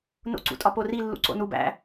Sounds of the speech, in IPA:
n o̰ ǀ ṵ tʼ ɒ p o r i lː ṵ ǀ o̰ n u b æ̰

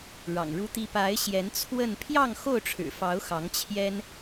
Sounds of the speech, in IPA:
ɻ ɑ̰˨˩ ŋ ɻ u˦ t̪ i˦ p a˨˦ ɪ̯ ɕ j ɛ˨˦ n t͡sʰ w ə˥˨ n pʰ j ɑ˥˨ ŋ x o˥˨ ʊ̯ ʈ͡ʂʰ ɻ̩˨˩ f ɑ˨˦ ʊ̯ x ɑ˨˦ ŋ t͡ɕʰ j ɛ˦ n

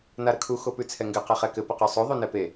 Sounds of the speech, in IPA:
n a ɾ ə kʰ u x o p ʉ t͡sʰ ɛ ŋ ɡ ɘ q e χ ɛ k ɘ p ə q ʉ sˤ o ðˤ o n ɛ p e

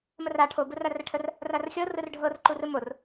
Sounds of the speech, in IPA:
m ə r a ʈʰ o b ɯ r a r ʈʰ ə r | r a r xʲ ɤ r ɯ r ɖʱ ɤ r ǃ u r ɯ m o r

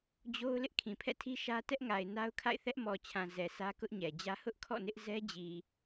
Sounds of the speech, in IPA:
d͡ʑ o˦ ʊ̯ l ɪ˦ ʔ kʰ ĩ˨ pʰ ɛ̰˦˨ tʰ i˦ ʃ ä˦ t ɛ˦ ʔ ŋ a˨ ɪ̯ n a˦ ʊ̯ kʰ a̰˦˨ ɪ̯ θ ɛ˦ ʔ m ɔ˨ t͡ɕʰ ã˨ z ɛ˨ s ä˦ k ʊ˦ ʔ ɲ ɛ˨ d͡ʑ ä˦ h ʊ˦ ʔ kʰ ɔ̰˦˨ n ɪ˦ ʔ z ɛ˦ d͡ʑ i˨

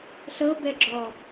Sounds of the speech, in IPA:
ɬ ɤ b ɛ ɡ͡ǁ ɔ

